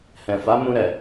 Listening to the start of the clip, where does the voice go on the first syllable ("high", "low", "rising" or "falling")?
low